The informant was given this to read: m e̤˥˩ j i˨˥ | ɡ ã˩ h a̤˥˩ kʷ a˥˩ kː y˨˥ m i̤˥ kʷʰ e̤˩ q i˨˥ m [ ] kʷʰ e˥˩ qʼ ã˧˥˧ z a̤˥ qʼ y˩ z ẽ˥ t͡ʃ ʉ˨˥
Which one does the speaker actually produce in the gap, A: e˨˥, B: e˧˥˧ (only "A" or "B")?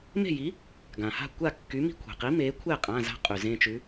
A